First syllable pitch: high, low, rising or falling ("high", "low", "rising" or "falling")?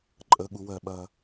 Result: low